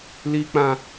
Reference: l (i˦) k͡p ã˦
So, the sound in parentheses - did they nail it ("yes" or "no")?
yes